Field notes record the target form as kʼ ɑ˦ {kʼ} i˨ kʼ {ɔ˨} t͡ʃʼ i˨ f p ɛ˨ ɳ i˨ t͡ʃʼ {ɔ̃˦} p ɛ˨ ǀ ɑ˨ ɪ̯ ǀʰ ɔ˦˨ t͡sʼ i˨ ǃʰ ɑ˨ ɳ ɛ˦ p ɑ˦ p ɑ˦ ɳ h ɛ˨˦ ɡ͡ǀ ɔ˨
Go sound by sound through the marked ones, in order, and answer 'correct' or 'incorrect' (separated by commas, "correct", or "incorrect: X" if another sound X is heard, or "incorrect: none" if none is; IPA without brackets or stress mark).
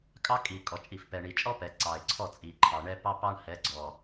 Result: correct, correct, incorrect: ɔ˦